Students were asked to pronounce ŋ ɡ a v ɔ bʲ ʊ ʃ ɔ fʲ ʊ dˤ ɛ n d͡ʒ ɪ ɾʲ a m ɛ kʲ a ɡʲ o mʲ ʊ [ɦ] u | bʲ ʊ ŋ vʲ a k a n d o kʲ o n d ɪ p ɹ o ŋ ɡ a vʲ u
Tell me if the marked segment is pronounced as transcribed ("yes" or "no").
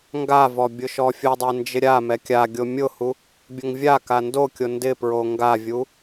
no